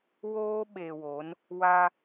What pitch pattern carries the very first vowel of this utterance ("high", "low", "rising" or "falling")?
high